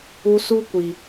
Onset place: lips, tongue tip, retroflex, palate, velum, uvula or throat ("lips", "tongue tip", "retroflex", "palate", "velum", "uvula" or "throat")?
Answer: tongue tip